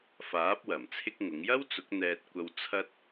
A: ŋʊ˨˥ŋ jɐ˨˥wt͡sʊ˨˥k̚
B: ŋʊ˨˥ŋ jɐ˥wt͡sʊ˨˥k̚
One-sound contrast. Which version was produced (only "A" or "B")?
B